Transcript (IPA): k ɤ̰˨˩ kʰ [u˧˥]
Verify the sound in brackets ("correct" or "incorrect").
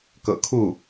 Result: incorrect